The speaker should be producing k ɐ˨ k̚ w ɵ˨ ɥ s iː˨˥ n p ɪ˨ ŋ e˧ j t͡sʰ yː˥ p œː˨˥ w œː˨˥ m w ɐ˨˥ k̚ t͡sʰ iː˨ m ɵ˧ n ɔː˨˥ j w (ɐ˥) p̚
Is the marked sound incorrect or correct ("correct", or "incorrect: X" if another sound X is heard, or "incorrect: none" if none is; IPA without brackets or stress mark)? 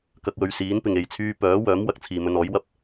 correct